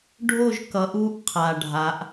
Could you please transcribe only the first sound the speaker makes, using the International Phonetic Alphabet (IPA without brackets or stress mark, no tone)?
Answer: ɖʱ